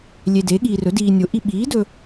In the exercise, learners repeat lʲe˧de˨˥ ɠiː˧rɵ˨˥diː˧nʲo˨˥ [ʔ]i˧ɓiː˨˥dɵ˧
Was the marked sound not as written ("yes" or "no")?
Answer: no